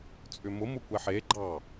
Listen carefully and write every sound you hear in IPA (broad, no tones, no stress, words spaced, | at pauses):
t͡sʼʏmʊ mʊkʷɛħe ɡ͡ǃɑ